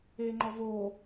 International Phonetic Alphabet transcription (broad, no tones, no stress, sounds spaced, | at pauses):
eː ŋ͡ǃ ɔ v oː